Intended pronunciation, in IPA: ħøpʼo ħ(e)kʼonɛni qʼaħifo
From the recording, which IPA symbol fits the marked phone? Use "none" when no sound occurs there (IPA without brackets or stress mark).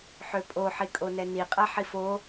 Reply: i